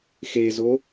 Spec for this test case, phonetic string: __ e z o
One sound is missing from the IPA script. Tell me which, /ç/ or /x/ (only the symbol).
x